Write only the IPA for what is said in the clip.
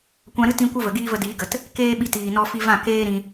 kʷ ã˧ ɾ ɨ˦ t ĩ˧ kʷ ə˦ v ə˨ ɡ iː˦ v ə˧ d iː˨˦ ɡ ə˨ t | k eː˦ ɓ i˧ t iː˨ n ɔ˧ f i˧ v ã˦˨ k eː˦ ɾ ĩ˧

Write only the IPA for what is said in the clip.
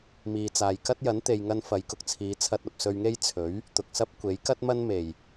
m iː˨ t͡s aː˨ j k ɐ˥ t̚ j ɐ˨˥ n t̪ e˨ j ŋ ɐ˧ n f ɐ˨˧ j k ʊ˨ k̚ t͡sʰ iː˨˧ t͡sʰ ɐ˧ t̚ ɐ˨ p̚ s ɵ˧ ɥ ŋ e˥ j t͡sʰ ɵ˨˥ ɥ | t̪ ʊ˨ k̚ s ɐ˥ p̚ kʷ e˨˥ j k ɐ˥ t̚ m ɐ˥ n m e˨˩ j

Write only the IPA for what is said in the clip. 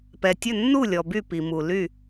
p ɛ˨ tʲ ɵ˥˨ nː u˥˨ lʲ ɔ˨ b y˥˨ p i˨ m u˨ l y˥˨

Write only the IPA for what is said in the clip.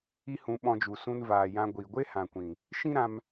i˦ h ũ˧ ɓ ɔ̃˧ d͡ʒ u˨ s ũ˧ n v aː˨ j ã˧ ɡʷ i˨ ɡʷ e˦ h ã˨ kʷ ĩ˨ | ʃ ĩ˦ ɾ ã˧ m

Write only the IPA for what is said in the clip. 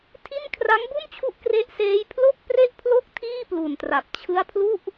tʰ i˥˩ n kʰ r a˦˥ ŋ b u˥˩ n t͡ɕʰ u˦˥ ʔ k r e˦˥ ʔ s eː˦˥ j pʰ l o˥˩ k̚ p r e˥˩ ʔ pʰ l o˥˩ k̚ tʰ iː˥˩ p l u˨˩ n t r a˨˩ p̚ t͡ɕʰ ɯ˦˥ a̯ pʰ l u˥˩ ʔ

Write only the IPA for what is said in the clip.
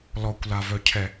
l ɔ kʷ l a v œ cʰ ɛ

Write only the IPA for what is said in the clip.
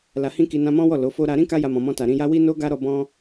l a˨ h ĩ˧ k i˧ n ã˧ m ɔ̃˦ w ɔ˦˨ l o˨˦ f o˦ ɾ a˧ ɾ ĩ˦ k a˦ j a˧ m ɔ̃˨ m ɔ̃˧ t a˨ ɾ ĩ˧ j a˦ w i˦ n o˦ ɡ a˦ ɾ ɔ˦˨ b ɔ̃˧

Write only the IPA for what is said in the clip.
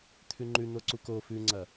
t̪ʰ ʉ ŋ͡ǃ ʉ n̪ o ǀ u k o f ʉ ŋ͡ǀ ɐ

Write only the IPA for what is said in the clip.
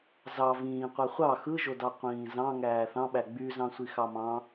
z ɑ v ĩː qʷ æ χʷ ɑ x ɯ ʒ o d ɑ qʷ ĩː z ɑ̃ ŋ æː θ ɑ̃ ɓ æ ɡ͡b y z ɑ̃ sʷ i x ɑ m ɑ̃

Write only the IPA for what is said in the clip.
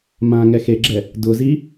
m ãː ŋ ɛ x e ɡ͡ǁ ɛ | d ʊ z i

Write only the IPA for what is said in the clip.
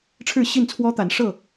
ʈ͡ʂʰ ɻ̩˥˨ ɕ i˥˨ n t͡sʰ w ɔ˦ t̪ a˨˦ n ʂ ɤ˥˨

